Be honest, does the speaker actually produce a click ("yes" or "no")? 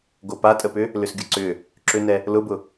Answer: yes